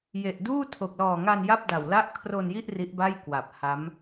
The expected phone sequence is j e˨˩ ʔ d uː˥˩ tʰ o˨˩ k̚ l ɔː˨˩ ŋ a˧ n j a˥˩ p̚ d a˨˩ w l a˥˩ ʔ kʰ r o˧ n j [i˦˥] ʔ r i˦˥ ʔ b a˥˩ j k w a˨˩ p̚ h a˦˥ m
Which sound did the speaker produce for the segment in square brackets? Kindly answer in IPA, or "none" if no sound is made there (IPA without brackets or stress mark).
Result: i˥˩